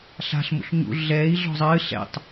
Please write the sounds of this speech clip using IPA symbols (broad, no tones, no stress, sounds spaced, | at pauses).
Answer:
ɬ a̤ ɬ m ṵ ɬ ɲ ṵ ɮ ɛː i̯ ɮ ɔ̤ zˤ ɨː ɬ ɛ̰ tˤ